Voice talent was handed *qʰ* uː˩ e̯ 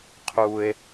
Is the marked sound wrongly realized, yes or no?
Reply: no